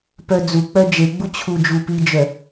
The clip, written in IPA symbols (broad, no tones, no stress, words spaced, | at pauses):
pœd͡zuk͡pœ d͡ʒeɡ͡bu t͡ɕʰud͡ʒupid͡ʒœ